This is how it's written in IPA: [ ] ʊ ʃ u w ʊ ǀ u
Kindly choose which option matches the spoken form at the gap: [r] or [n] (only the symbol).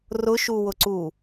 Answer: r